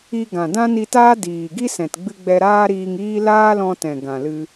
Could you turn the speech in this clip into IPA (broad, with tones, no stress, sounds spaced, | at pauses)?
i˧ ɡ ã˨ d ã˦ n i˧ t aː˦ d iː˨ ɡ i˦ s ɛ̃˨ t ɡ͡b ɨ˧ ɡ͡b ɛ˧ ɾ aː˦ ɾ iː˧ ŋ iː˦ l aː˦ l ɔ̃˧ t ɛ̃˨ ɡ ã˨ l ɨ˧